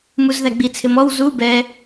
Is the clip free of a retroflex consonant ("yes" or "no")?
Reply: yes